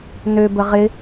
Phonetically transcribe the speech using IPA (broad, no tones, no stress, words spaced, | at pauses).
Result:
nøbə ʁɪ